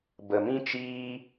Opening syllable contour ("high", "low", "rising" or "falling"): low